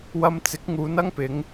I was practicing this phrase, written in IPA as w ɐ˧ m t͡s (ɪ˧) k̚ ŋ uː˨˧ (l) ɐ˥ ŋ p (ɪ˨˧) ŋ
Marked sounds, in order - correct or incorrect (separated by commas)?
incorrect, incorrect, correct